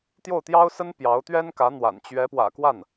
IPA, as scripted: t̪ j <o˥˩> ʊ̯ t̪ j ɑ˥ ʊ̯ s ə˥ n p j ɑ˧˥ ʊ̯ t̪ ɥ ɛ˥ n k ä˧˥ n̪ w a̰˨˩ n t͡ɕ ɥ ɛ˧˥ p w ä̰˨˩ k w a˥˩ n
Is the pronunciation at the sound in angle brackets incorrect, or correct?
correct